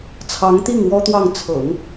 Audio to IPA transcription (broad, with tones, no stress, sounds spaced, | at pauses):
t͡sʰ ɑ˧˥ ŋ t̪ i˥˩ ŋ w ɔ˥ t̪ w ɑ˥˩ ŋ t͡sʰ ɤ̰˨˩˦ ŋ